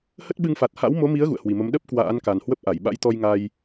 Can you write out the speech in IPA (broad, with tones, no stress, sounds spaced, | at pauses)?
h ə˦˥ t̚ ɓ ɨ˧ ŋ f a˨˩ t̚ h a̰˧˥ w m o˨˦ m i˨˦ ə̯ ɣ ṵ˧˨ ə̯ h w i˨˩ m ə˨˦ m ɗ ə˦˥ p̚ k w a̰ː˧˥ n k a˨˩ n h w ə˦˥ p̚ ʔ a˧˩ j ɓ a̰˧˥ j t̪ ɔ˧ j ŋ a˧ j